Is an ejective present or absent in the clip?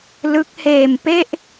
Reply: absent